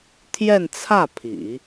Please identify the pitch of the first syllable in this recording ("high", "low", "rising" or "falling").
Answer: falling